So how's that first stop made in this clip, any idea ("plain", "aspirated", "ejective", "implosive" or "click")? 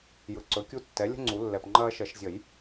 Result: click